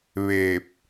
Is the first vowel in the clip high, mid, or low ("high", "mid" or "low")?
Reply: mid